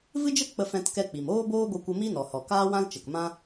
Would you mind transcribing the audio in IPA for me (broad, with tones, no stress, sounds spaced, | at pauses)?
v ɨ˦ d͡ʒ ə˦ k͡p ə˦ f ɛ̃˦ t k ɛ˦ k͡p i˨ m oː˦ b oː˦ ɡʷ ə˧ kʷ ə˧ m i˦ n ɔ˨ h ɔ˨ k aː˦ w ã˦ l t͡ʃ ə˨ k m ã˦